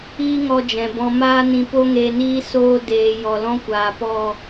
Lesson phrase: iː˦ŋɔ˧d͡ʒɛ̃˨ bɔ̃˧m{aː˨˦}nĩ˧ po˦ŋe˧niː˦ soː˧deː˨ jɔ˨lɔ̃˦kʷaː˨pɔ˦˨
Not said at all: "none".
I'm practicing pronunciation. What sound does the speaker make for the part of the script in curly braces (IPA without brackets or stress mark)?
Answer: aː˦